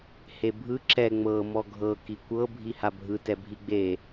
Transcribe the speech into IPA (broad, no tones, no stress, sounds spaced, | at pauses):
h e bʱ ɯ ǁ ɛ ŋ͡m ɤ m ɔ ɡʱ ɤ k i kʷ ɤ bʱ i h a bʱ ɯ t ɛ bʱ i ɡ͡b e